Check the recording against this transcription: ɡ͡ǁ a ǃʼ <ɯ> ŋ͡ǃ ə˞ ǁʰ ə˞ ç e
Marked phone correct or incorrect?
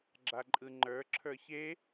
correct